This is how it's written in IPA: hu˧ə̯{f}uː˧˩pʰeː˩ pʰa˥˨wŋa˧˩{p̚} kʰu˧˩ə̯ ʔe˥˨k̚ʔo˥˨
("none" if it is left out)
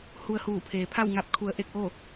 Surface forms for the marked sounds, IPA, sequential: h, p̚

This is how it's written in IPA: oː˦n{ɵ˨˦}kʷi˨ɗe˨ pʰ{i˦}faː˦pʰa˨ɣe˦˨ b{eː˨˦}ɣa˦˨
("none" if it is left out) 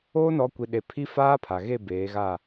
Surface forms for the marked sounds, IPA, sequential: ɔ˨˦, i˦, eː˨˦

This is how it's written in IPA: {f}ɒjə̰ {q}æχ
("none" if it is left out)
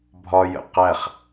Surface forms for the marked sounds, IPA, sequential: bʱ, q

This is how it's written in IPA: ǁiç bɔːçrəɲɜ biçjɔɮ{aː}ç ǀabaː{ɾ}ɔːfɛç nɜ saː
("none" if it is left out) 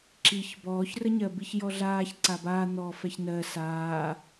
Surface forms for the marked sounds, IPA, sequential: aː, n̪

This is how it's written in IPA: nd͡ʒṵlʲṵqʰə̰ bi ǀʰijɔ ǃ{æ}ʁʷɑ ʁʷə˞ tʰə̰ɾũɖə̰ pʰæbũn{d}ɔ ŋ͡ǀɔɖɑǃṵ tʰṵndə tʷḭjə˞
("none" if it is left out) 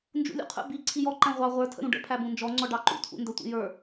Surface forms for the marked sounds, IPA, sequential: æ̃, d͡ʒ

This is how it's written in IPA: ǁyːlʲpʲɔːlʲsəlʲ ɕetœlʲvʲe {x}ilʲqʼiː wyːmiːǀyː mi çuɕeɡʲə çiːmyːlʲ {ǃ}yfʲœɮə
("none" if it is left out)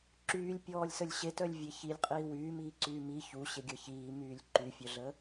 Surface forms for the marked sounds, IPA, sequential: ç, ǃ

